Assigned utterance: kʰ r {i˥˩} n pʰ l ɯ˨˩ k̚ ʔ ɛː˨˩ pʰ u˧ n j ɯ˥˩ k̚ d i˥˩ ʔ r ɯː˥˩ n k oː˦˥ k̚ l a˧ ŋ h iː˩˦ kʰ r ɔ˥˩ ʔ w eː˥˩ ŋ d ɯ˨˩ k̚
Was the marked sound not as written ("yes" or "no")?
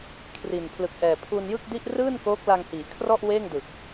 yes